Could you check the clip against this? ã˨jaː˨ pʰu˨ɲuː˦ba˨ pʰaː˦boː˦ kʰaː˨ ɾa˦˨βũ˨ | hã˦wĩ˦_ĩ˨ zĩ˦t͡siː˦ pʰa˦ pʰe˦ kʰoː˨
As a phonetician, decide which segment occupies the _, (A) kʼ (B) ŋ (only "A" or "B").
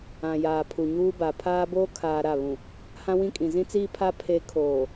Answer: A